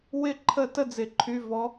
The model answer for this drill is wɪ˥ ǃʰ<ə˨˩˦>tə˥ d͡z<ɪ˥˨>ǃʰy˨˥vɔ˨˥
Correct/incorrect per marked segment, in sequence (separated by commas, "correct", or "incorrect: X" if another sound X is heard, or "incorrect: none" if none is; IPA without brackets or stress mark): incorrect: ə˥˨, incorrect: ɪ˨˩˦